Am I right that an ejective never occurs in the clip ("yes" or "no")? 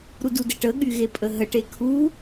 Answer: no